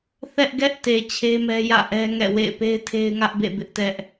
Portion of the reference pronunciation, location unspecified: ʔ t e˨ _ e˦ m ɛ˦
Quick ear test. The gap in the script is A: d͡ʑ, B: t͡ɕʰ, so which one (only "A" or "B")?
B